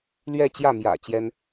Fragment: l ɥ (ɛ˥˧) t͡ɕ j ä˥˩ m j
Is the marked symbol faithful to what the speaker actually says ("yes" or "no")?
yes